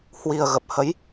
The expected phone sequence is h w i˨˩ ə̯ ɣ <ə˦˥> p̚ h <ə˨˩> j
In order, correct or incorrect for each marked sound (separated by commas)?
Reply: incorrect, incorrect